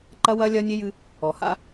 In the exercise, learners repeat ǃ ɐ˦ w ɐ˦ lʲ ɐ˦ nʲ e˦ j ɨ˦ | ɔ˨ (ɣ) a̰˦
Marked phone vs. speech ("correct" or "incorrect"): incorrect